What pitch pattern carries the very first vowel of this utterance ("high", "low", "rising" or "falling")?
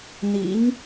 rising